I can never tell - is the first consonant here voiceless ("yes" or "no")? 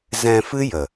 no